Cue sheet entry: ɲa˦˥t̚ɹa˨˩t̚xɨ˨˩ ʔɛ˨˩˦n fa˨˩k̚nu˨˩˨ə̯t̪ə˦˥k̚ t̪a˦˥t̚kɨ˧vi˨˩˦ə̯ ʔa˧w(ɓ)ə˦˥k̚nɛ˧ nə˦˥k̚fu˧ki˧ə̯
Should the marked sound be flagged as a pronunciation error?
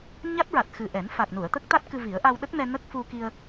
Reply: yes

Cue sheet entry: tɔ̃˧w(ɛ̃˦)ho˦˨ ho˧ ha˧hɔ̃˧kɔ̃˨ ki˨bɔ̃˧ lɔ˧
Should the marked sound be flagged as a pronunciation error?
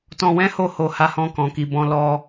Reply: no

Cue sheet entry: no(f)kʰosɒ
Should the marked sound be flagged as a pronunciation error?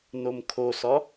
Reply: yes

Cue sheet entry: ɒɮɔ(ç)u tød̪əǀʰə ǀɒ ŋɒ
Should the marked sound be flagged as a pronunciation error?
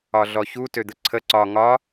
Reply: no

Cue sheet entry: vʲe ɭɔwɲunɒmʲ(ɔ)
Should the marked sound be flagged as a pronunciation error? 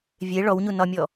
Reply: no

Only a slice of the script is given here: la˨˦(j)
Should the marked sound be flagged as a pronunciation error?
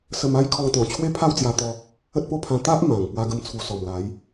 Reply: no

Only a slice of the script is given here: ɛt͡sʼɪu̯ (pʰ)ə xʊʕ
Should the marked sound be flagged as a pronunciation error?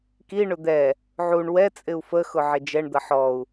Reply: yes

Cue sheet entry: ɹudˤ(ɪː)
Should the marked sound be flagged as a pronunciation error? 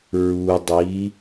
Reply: yes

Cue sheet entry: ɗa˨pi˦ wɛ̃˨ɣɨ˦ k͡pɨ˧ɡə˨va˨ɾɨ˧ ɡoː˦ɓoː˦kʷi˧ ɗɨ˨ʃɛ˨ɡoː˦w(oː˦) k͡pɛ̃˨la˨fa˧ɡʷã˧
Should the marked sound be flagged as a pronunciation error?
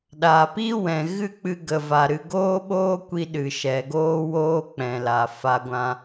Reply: no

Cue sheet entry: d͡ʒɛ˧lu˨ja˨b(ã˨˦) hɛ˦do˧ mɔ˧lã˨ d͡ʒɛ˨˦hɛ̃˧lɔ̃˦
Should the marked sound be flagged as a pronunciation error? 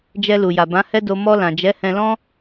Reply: no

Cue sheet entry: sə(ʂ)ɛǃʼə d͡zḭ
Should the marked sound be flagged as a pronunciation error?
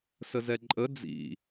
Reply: yes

